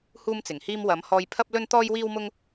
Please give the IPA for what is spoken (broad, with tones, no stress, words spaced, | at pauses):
huː˥mt͡sɪ˨˩ŋhiː˥m wɐ˨˥m hɔː˧jpʰɐ˥p̚ lɵ˥nt̪ɔː˥jwiː˥wmʊ˥ŋ